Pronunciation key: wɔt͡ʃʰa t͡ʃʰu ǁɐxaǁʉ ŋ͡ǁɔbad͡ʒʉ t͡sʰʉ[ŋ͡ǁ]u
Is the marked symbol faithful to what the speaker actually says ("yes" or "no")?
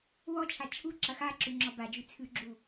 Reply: no